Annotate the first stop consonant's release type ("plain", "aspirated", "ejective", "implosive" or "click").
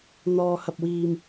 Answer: plain